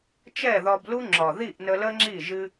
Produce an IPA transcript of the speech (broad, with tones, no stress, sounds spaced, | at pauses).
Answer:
t͡ʃ ɛ˦˨ ð ɒ˧ b l u˦ ŋ͡ǁ ɒ˨ ð i˦˨ ʔ n ə˧ l ə˦ ŋ͡ǁ i˦˨ ʒ ɨ˧